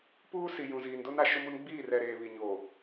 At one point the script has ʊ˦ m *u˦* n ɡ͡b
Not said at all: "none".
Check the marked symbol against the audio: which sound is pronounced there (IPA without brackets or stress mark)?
u˦